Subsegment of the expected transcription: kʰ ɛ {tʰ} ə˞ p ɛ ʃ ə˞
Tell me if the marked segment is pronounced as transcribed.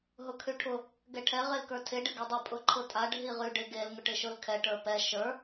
no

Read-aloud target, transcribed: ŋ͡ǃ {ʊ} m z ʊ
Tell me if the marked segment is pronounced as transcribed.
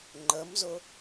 no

